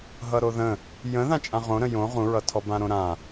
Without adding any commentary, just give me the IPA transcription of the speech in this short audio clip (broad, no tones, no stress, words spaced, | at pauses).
ɦʌɾoðə̃ | jə̃ ðãt͡ʃʼãʁõɾə̃ jõ ʁũɹʌ tʰɔbãɾõɾã